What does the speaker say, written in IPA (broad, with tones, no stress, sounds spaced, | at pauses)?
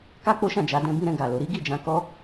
k a˦ k͡p o˦ ʃ ã˦˨ d͡ʒ a˨˦ d ɛ̃˦ b ĩ˦ ɾ ɛ̃˧ ɡ a˨ l o˧ ɾ i˦ ɡ i˦˨ d͡ʒ ã˧ k ɔ˦